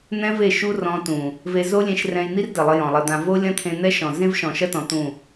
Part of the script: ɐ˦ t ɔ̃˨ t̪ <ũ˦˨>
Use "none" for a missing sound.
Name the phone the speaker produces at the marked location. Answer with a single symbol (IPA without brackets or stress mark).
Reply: ũ˦˨